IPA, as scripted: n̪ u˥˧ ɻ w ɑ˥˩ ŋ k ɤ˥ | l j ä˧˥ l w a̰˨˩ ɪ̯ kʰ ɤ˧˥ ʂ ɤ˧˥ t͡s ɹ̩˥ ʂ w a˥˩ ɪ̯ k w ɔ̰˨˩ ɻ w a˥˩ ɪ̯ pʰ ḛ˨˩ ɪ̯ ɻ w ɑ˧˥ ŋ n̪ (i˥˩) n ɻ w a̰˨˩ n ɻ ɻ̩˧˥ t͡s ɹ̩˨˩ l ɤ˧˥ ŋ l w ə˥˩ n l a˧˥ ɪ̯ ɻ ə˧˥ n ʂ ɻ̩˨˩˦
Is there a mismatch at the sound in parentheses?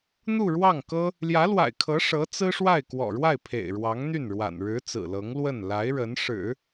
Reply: yes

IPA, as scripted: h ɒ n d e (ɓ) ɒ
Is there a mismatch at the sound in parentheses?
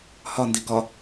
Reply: yes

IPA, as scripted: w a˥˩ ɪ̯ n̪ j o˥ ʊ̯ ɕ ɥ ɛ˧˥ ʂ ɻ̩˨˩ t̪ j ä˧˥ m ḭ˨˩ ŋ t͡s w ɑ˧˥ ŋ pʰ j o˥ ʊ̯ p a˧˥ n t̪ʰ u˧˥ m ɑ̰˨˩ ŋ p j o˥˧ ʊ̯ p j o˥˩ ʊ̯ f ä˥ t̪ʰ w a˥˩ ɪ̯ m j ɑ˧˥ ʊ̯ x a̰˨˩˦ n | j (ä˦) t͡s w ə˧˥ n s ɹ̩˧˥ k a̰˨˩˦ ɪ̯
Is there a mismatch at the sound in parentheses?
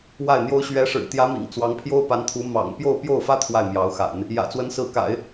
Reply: yes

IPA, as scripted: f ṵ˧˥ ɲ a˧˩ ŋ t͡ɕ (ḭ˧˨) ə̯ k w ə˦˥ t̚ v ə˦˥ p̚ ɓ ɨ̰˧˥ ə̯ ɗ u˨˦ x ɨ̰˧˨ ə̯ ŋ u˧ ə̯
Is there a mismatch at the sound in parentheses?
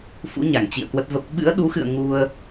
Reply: no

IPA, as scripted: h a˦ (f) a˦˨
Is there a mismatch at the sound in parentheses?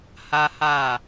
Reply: yes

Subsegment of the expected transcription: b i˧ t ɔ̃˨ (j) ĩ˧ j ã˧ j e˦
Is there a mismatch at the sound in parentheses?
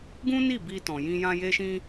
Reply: no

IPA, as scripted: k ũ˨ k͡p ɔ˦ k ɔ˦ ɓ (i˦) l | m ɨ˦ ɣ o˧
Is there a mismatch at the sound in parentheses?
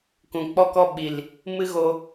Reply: yes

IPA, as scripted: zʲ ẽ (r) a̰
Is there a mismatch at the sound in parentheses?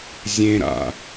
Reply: yes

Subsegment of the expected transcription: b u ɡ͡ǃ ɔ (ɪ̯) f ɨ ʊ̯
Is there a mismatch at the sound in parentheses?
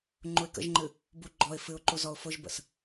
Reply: no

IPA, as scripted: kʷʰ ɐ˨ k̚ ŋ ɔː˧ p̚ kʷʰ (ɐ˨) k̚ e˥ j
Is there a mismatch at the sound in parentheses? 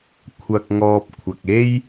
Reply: no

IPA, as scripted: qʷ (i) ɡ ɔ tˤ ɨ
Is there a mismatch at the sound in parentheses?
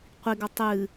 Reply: no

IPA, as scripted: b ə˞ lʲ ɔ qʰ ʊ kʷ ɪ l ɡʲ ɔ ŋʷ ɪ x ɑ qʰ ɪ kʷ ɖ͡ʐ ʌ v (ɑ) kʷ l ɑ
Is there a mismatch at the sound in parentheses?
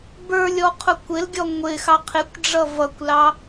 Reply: yes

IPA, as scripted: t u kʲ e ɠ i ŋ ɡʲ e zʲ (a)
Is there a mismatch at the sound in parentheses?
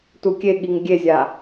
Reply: no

